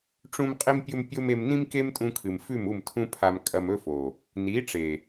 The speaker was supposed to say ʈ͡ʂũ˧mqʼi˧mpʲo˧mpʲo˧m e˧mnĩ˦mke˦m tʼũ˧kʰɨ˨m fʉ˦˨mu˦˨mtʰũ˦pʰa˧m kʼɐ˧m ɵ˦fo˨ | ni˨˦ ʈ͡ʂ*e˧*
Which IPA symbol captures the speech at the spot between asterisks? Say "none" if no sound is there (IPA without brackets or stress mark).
e˨